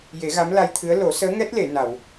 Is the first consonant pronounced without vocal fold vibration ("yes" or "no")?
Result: no